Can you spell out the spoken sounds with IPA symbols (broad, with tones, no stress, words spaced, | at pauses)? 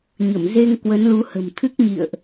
ɲə˧˩mze˧ŋ kwə˨˦nlu˨˦hə̤˨˩m t̪ʰɨ˦˥k̚ɲḭ˧˨ə̯ʔ